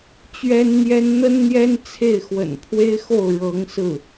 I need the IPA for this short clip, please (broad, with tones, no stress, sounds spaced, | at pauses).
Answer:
t͡ɕ ɥ ɛ˥ n n̪ j ɛ˥ n n̪ ə˥ n n̪ j ɛ˥ n t͡sʰ e˥˩ ɪ̯ x w ə̰˨˩ n pʰ w e˥ ɪ̯ x o˥˩ ʊ̯ ɻ ɤ˧˥ ŋ s ɹ̩˥˩